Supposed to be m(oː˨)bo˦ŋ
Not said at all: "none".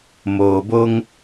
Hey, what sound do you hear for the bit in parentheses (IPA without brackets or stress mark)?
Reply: oː˨